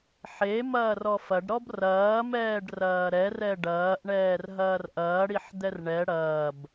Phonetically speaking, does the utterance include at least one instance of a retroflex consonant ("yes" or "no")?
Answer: yes